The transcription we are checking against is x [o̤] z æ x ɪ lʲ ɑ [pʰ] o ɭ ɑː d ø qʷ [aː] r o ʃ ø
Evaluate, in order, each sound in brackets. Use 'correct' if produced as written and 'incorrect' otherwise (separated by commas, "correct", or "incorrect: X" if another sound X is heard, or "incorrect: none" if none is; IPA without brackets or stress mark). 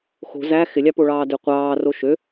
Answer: correct, incorrect: p, incorrect: ɑː